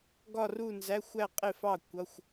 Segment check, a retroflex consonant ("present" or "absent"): absent